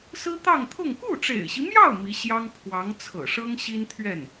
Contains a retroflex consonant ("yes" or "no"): yes